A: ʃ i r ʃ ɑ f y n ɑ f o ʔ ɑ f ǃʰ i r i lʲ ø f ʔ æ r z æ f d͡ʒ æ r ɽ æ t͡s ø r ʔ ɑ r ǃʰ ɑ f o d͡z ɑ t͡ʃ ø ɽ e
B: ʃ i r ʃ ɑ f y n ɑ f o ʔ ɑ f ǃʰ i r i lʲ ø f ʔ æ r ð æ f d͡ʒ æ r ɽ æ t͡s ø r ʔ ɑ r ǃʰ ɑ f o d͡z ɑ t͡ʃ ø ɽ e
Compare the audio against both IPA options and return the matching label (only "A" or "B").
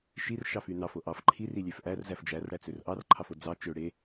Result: A